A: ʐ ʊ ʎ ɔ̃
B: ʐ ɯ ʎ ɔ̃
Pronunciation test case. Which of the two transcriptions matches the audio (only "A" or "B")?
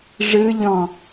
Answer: B